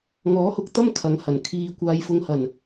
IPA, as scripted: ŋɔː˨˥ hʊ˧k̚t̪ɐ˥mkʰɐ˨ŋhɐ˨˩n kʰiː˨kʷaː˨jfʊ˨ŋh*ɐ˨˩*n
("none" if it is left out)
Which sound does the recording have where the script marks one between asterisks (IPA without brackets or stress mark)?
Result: ɐ˨˩